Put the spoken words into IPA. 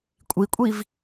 kʷʼ i kʷʼ i v

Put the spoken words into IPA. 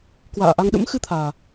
k w a̰ː˧˨ ʔ a˧ ŋ ɗ ə̰˧˥ m x ɨ˧ t̪ʰ aː˨˩

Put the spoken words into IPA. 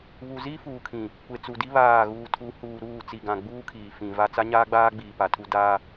β u˨ z i˦ f uː˨ kʰ ĩ˨ | kʷ e˨ t͡s u˨ d i˦ β aː˦˨ ɣ uː˨ tʰ u˨˦ h uː˨ ɾ uː˦˨ t͡s i˨ ɡ ã˨ ɡ͡b uː˦ kʰ iː˨ f ĩ˨ v a˦ t͡s a˦ ɲ aː˦ ɡ͡b aː˦ ɡ͡b iː˨ p a˨ tʰ u˦ d aː˦

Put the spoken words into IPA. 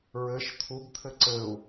ɹ ɘ ʃ t̪ʰ u b t̪ʰ ɘ ǀ ɘ u̯

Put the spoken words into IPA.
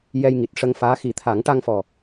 j ɛ˧ j ŋ i˨˩ t̚ ʂ ə˧ ŋ f aː˧˥ x i˨˩˦ t̪ʰ a˨˩˦ ŋ ʈ a˧ ŋ f ɔ˨˩

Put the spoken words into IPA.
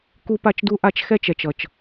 k u˦ p a˦ t͡ʃ d u˦ ʔ a˦ t͡ʃ x ɛ˦ t͡ʃ ɛ˨ t͡ʃ ʌ˨ t͡ʃ

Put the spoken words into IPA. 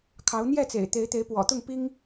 kʰ ɑ˨˦ ʊ̯ n̪ j ɛ˥˨ t͡s ḛ˨˩ ɪ̯ t̪ e˨˦ ɪ̯ t̪ e˨˦ ɪ̯ p w ɔ̰˨˩ t̪ ʊ˥˨ ŋ p i˦ ŋ

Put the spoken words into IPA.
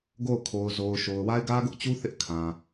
ɡ o˦˨ ʊ̯ kʰ o˨ ʊ̯ z o˨ ʊ̯ ʃ o˨ ʊ̯ w a˦ ɪ̯ ɡ ä˦ ɡ ʊ˦ ʔ t͡ɕ u˦ θ ɪ˦ ʔ kʰ ã˨

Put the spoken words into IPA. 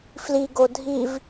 f l i ɡ o dʱ i v

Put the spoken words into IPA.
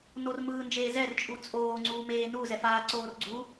n o r m ɯː n d͡ʒ eː z ɛ r t͡ʃʼ u t͡sʼ oː ŋ͡ǀ uː m eː n u z ɛ f aː ǀ oː r ɡ͡ǀ u

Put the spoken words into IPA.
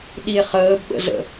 ɗ i e̯ χ əː b ɓ ə̰ z ə̰

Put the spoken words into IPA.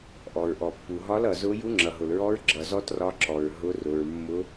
ʔ ɔ˩ ɹ ʔ ɔ˩ pː u˩ ɦ ɒ˧˥ l ʌ˩ z ʊ˧˥ j u˧˥ ŋ͡ǁ ʌ˩ ɦ ʊ˩ l ɹ ɔ˧˥ ɹ ɡ͡ǁ ʌ˩ z ɔ˧˥ t r ɒ˧˥ ǁ ɔ˩ ɹ ɦ ʊ˧˥ r ʊ˩ ɹ mː ʊ˧˥

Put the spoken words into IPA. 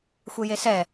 xʷ e j e s ɛ

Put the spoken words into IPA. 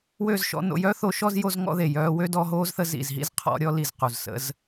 w ø˦˨ z ʃ ɔ̰˧ n o̰˧ j œ˦ θ o˧ ʃ ɔ˦ z j o˦ z ŋ ɔ̰˦ ð e˨ j œː˧ w ø˦ d ɔ˧ ɦ oː˦ z θ ə˧ z ḭ˨ z ɦ ḭ˦ z qʰ ɔ̰˧ ɾʲ ɔ˧ l i˨ z q u˨ z s ə̰˧ z

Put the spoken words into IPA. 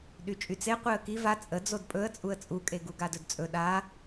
ɗ y t͡ʃʼ y t͡s e qʷ e ə̯ k i v a t͡sʼ ə d͡z o d pʼ ɵ ə̯ t͡sʼ u ə̯ t͡sʼ u kʼ e ɡ u ɡ a d ɵ d t͡sʼ ɵ ɗ a

